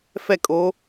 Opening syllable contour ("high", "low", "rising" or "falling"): falling